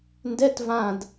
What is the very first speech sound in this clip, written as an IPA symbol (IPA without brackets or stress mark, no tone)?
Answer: n